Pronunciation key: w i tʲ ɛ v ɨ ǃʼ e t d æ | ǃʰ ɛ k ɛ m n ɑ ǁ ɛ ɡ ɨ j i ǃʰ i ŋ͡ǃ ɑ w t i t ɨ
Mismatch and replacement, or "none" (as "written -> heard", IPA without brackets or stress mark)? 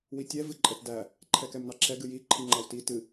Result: e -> ɛ